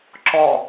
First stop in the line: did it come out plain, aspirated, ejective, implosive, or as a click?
click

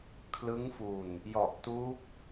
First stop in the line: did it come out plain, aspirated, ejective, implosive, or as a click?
aspirated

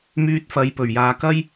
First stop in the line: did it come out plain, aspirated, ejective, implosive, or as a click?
plain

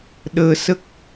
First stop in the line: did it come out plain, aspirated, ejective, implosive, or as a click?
implosive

